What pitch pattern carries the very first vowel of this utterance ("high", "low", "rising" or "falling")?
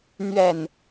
low